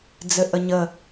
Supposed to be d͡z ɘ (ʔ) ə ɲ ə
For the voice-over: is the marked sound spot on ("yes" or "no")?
yes